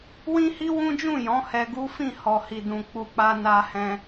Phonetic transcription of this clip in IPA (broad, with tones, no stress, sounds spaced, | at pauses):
w ĩ˦ h i˦ w ũ˦ d͡ʒ ũ˦˨ j ɔ̃˨˦ h ɛ˧ ɡ u˦ f ĩ˦˨ h ɔ˨ h i˨ d ũ˨ k͡p u˨ k͡p a˧ n a˧ h ɛ̃˧